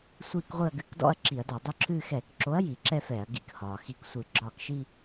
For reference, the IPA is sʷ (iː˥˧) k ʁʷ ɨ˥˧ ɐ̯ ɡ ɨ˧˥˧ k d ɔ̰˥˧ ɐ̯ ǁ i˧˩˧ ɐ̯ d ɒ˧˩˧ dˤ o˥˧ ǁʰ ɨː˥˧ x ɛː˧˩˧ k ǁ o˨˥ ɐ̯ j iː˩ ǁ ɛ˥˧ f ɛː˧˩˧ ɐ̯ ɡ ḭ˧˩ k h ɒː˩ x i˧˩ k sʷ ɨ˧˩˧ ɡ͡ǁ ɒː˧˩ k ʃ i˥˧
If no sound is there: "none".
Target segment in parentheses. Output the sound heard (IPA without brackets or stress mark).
iː˥˧